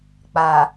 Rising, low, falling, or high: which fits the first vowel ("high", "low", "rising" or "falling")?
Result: low